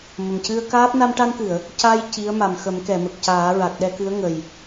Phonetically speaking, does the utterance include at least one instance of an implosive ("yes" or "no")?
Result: yes